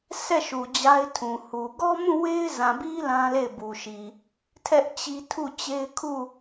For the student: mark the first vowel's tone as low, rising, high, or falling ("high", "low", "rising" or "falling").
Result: falling